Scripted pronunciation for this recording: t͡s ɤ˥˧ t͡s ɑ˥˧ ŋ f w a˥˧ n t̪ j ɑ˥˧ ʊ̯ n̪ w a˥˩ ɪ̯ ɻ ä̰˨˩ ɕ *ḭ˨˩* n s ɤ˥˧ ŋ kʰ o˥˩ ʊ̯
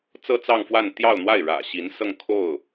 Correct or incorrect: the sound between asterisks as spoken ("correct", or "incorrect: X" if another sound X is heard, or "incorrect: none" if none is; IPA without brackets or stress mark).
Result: incorrect: i˧˥